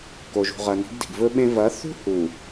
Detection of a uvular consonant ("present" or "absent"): present